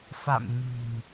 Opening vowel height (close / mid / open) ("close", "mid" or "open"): open